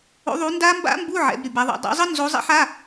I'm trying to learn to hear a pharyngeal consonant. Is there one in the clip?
yes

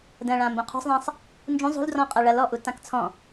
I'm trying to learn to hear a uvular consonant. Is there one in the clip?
yes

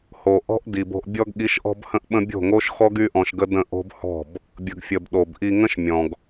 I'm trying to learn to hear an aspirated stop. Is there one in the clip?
no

